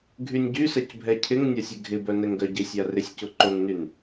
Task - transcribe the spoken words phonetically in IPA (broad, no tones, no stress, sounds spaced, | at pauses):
ɡʱ y nʲ ɟ y s ɛ c bʱ ɛ cʰ ɪ ŋ nʲ a sʲ ɪ ɡʱ ɪ b œ n ɛ ŋ ɡ œ ɟ ɪ sʲ a r ɪ sʲ c ʊ ǃ o ŋ n y n